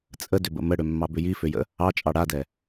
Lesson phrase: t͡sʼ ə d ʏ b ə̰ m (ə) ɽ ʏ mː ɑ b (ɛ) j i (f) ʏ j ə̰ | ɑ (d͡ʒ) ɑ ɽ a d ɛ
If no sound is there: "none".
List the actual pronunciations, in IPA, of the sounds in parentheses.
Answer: ə, ʏ, f, t͡ʃʼ

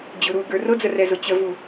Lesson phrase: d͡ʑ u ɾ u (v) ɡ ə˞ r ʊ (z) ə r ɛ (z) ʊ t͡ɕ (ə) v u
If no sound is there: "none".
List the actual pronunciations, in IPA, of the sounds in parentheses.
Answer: none, d͡z, z, ə

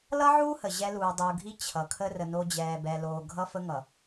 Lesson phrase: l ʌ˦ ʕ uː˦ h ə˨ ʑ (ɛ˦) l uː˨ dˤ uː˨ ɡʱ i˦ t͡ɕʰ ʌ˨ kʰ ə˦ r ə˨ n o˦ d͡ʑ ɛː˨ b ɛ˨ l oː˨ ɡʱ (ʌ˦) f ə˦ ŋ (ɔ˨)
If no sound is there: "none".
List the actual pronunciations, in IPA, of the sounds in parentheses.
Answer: ɛ˦, ʌ˦, ʌ˨

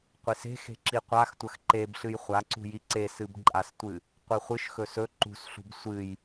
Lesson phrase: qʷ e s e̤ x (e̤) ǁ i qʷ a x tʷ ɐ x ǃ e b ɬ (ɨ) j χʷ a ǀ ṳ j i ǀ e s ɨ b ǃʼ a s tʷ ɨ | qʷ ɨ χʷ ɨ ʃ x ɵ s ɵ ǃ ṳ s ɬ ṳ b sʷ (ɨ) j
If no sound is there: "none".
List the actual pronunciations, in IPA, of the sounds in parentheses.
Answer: e̤, ɨ, ɨ

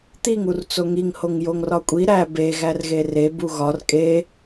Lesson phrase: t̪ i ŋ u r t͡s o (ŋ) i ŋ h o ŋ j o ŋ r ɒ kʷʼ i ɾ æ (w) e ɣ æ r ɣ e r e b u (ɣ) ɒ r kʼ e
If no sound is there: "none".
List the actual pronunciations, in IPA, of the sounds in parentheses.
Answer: ŋ, b, ɣ

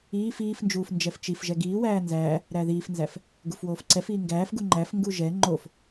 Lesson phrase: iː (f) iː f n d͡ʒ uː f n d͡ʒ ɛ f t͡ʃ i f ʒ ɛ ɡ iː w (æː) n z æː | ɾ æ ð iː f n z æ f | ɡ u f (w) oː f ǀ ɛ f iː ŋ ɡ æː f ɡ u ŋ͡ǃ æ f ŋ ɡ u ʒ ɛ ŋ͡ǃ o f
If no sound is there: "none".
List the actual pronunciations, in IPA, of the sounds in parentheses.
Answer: f, æː, w

